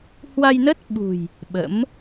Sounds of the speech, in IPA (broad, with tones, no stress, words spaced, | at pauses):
hwa˧jnə˦˥t̚ɓṳ˨˩j | ɓə̰˧˥m